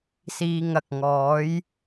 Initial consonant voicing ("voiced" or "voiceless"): voiceless